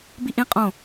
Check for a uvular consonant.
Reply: present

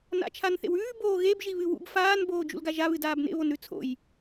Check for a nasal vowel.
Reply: absent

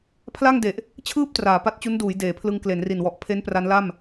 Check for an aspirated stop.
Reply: present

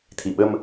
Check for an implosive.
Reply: present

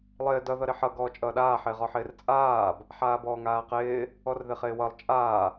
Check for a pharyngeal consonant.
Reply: present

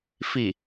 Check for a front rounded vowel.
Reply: absent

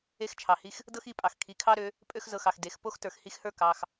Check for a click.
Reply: absent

